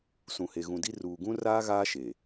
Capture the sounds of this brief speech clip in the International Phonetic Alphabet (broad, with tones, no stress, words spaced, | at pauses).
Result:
sũ˨he˨ɣũ˨di˦ ruː˨ɡũ˦ raː˦ɣaː˦ ʃe˨